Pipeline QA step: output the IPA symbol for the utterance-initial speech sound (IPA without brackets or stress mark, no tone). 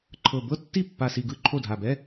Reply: ǃʰ